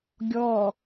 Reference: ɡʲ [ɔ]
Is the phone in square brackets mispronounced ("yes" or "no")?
no